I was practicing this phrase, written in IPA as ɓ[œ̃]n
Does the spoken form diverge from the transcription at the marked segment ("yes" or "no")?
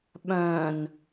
no